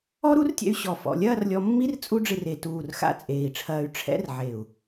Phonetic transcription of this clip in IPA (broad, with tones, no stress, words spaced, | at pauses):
ɔ˦˥ɾu˦˥rtʲɛ̰˧y̯ ɕɔ˧˩ fɔ̰˧˩lʲɐː˥˧rlʲɔ˧mːi˦˥r t͡sʼu˦˥ɖ͡ʐɨ˧re˧˩ tuː˧˩rxa̰˦˥ t͡sʼeː˧˩i̯ʈ͡ʂʰɐː˧y̯ ʈ͡ʂʰɛ̰˦˥r ʕe˧˩u̯